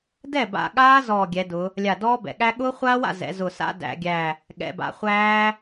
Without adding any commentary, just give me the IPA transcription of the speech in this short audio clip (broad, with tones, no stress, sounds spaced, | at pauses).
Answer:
d ɛ˥˩ b a̰˧˩ ɠ aː˦˥ z ɔː˧˩ ɡʲ ɛ˩˧ d ʊ˩˧ | lʲ a˧˩ d ɔː˦˥ b ɛ̰˩˧ ɠ æ˦˥ ɠ ʊː˦˥ χʷ aː˦˥ w a̰˥˩ z ɛ̰˩˧ z ʊ˧˩ s a̰˦˥ d æ̰˩˧ ɡʲ æ˧˩ | ɠ ɛ̰˩˧ b a̰˩˧ χʷ æː˦˥